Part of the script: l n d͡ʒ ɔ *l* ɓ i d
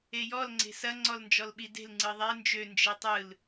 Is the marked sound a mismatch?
no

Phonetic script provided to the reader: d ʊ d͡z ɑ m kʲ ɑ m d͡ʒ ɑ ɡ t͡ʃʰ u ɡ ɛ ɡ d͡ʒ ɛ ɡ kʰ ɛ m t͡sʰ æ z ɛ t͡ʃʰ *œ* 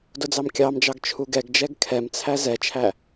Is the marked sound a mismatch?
yes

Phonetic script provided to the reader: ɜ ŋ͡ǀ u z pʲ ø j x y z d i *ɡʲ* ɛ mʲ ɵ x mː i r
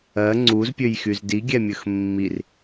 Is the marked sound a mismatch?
no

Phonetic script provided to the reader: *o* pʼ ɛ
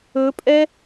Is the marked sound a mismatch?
yes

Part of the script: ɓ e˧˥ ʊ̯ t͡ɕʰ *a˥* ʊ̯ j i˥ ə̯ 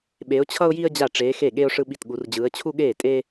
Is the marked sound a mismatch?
yes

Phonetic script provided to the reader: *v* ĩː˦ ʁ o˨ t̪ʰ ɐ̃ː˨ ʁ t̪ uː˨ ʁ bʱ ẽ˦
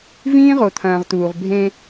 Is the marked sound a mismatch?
no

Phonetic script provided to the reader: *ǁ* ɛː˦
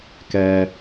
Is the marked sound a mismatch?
yes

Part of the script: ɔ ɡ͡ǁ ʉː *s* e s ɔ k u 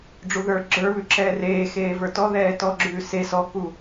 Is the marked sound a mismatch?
no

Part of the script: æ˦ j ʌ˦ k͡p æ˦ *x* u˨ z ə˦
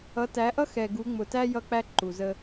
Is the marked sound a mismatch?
yes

